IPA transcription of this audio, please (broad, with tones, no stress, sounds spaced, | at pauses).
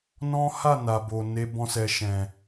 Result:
n ɔ̃˦ h a˦˨ n a˨ b o˨ n e˨˦ b ɔ̃˦ s ɛ˧ ʃ ɛ̃˨